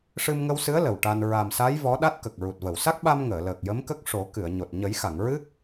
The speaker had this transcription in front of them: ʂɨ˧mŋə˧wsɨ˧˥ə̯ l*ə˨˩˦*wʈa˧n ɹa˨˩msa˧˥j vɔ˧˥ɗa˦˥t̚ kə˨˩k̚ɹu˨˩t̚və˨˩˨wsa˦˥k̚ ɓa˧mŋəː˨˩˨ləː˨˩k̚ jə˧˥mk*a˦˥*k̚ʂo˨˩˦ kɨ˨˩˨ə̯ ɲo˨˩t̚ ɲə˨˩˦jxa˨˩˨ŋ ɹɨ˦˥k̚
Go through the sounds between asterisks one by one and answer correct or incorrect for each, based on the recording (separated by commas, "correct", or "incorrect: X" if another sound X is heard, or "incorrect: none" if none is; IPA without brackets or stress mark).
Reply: incorrect: ə˨˩, incorrect: ə˦˥